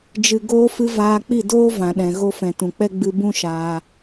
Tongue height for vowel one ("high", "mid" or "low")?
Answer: high